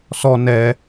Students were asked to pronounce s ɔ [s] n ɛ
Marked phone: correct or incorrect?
incorrect